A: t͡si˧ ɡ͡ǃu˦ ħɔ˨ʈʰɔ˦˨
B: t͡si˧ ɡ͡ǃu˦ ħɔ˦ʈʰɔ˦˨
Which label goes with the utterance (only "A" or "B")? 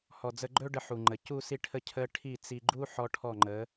B